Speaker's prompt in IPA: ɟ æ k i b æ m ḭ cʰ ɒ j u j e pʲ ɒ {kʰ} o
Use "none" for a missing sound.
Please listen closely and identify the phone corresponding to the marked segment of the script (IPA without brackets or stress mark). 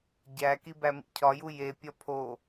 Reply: pʰ